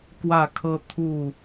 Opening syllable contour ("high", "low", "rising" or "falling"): falling